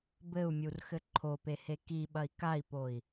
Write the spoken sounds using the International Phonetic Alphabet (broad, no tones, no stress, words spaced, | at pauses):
bɘu̯mʲurxɘ ǃʰopehe kiɓɐi̯ kai̯poi̯